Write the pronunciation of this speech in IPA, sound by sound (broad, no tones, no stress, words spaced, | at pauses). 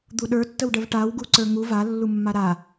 d̪uɗə˞tːəwɖəv ʈaw ɡuǀə˞ŋu valːumːa ɾa